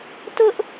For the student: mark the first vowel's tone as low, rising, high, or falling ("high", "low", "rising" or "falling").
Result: high